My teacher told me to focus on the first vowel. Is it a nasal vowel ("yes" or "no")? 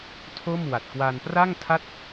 no